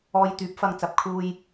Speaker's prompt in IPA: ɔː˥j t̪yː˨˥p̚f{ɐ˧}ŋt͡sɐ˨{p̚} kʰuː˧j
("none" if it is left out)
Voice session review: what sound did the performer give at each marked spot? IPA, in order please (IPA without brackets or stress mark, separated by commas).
ɐ˧, p̚